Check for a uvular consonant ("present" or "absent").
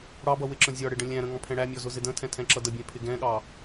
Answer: absent